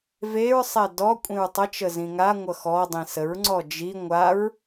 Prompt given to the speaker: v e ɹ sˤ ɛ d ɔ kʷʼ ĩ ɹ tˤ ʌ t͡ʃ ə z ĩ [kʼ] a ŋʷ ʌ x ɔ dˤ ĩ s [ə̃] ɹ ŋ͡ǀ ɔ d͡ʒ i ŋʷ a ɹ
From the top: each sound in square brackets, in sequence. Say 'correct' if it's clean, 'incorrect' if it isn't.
incorrect, incorrect

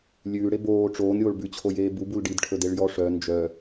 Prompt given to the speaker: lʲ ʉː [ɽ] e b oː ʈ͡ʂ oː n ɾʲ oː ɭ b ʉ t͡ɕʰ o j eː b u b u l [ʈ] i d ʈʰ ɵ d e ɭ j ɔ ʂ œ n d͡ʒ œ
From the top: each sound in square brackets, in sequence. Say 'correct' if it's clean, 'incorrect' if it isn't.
correct, incorrect

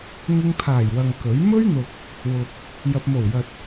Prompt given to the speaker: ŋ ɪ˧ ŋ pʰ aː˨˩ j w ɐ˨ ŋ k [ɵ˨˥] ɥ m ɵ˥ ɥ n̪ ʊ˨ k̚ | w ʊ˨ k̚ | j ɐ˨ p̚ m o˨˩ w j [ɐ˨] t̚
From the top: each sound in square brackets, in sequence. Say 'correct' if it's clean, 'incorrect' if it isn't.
correct, correct

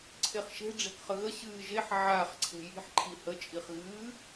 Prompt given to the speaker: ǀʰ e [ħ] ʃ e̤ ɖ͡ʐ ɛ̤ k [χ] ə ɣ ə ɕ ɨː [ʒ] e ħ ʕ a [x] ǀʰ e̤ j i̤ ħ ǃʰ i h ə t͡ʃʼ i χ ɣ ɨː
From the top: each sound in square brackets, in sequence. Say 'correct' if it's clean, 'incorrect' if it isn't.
incorrect, correct, correct, incorrect

